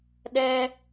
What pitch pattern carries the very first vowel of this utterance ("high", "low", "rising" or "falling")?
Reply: high